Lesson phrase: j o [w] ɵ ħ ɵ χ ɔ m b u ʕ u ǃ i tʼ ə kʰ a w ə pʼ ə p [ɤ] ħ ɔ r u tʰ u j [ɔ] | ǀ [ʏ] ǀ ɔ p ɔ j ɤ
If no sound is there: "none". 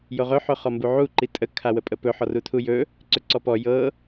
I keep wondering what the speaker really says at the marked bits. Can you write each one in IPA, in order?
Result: ʁ, ɵ, ɵ, ʏ

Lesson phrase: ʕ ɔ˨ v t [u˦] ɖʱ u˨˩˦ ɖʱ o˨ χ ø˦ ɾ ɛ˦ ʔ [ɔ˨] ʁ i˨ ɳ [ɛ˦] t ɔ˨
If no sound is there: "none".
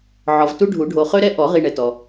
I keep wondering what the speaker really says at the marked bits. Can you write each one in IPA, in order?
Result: u˦, ɔ˨˩˦, ɛ˨

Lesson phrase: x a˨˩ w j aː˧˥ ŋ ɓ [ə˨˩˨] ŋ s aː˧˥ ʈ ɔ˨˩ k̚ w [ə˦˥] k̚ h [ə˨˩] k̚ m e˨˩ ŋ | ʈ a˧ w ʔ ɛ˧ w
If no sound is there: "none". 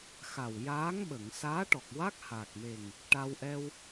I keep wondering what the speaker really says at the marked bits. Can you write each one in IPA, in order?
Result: ə˨˩˨, a˦˥, a˨˩

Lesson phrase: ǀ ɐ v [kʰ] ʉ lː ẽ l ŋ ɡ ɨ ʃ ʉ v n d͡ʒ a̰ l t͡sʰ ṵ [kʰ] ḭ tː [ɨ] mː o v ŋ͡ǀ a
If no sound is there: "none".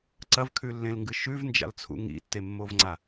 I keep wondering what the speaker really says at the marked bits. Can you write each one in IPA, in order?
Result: kʰ, ŋ, e

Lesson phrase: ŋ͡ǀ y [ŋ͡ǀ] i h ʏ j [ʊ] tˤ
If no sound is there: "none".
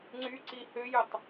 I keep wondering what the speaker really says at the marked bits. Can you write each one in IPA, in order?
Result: ǀ, ʊ

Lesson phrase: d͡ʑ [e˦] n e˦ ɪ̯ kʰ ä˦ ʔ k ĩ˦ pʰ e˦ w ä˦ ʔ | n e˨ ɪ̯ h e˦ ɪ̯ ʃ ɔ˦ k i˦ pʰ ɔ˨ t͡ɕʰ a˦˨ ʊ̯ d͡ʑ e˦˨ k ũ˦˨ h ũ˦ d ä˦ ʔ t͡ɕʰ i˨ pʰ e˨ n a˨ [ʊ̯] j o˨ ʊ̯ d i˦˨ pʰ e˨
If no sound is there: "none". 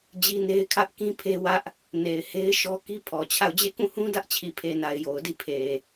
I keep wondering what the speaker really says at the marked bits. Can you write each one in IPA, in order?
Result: i˦, ɪ̯

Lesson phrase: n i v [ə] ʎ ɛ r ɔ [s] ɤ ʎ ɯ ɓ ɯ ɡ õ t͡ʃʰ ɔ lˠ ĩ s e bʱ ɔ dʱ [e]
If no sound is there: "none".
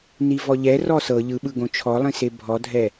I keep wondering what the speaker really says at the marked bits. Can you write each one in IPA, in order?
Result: ɔ, s, ɛ

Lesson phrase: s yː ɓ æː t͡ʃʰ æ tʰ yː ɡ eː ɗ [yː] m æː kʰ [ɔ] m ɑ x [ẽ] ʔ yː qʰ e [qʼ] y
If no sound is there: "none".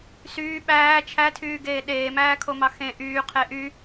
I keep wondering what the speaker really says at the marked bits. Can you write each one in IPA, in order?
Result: eː, o, ẽ, ʔ

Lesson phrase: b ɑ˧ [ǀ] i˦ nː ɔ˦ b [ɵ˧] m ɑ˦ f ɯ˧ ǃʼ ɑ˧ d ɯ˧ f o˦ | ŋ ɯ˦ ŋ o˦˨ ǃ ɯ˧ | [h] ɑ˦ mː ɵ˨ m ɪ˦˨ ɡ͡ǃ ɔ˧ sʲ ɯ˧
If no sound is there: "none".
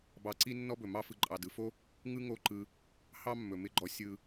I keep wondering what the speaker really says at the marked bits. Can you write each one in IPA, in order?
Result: ǀ, ɵ˨, h

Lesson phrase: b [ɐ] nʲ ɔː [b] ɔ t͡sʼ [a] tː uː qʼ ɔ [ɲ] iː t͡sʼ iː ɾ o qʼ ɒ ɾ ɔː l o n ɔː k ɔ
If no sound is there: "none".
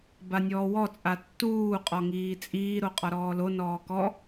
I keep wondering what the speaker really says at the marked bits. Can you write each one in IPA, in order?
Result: a, w, a, ŋ

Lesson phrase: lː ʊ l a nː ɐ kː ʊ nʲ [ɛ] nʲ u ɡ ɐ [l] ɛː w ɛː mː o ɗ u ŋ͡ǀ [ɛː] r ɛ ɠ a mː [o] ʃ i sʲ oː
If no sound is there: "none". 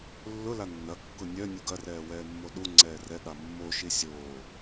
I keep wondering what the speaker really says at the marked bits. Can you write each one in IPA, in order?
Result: œ, r, ɛː, o

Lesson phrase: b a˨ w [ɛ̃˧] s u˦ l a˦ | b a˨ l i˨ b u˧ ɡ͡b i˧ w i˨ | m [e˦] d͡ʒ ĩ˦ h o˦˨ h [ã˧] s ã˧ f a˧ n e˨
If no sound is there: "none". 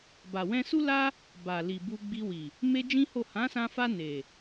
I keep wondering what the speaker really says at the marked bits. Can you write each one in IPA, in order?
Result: ɛ̃˧, e˦, ã˨˦

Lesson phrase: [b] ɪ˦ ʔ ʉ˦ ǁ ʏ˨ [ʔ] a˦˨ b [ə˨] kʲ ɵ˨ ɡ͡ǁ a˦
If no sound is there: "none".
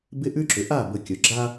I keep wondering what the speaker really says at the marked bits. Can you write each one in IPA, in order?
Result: b, ʔ, ə˨

